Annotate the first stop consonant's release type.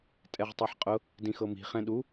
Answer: ejective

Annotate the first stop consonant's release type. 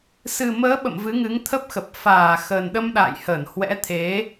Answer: implosive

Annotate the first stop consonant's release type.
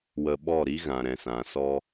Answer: implosive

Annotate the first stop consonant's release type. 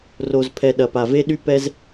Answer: aspirated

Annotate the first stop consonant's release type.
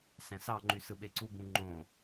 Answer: click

